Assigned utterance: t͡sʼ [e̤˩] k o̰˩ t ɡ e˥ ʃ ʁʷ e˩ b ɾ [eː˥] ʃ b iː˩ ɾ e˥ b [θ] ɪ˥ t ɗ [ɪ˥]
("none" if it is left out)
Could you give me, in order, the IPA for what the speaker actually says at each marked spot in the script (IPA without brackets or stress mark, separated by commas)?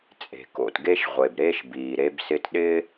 e̤˩, eː˥, s, ɪ˥